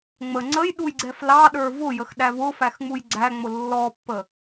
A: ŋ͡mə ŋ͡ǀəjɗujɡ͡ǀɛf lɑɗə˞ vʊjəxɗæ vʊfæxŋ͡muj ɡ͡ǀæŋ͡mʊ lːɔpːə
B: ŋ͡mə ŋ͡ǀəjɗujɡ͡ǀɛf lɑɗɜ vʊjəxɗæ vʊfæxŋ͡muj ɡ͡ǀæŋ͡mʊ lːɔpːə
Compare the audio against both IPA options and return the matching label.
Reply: A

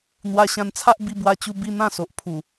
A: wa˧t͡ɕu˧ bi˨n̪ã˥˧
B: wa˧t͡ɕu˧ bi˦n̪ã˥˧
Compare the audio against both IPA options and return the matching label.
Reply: B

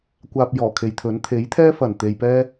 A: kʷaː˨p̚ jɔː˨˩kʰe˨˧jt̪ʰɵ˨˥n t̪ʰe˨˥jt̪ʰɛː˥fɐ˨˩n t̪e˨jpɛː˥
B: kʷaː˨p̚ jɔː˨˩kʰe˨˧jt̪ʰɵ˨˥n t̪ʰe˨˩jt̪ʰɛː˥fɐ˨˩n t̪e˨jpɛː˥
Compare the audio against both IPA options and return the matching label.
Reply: A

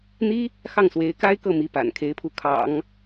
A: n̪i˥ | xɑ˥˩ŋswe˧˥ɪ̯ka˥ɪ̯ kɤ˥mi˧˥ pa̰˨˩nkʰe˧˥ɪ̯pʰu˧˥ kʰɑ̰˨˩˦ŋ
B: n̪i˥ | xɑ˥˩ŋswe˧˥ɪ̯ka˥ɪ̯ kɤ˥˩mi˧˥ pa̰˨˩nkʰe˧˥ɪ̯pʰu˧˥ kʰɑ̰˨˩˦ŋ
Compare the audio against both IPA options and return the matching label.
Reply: B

